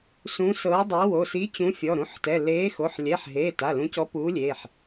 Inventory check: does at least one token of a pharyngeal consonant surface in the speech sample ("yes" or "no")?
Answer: yes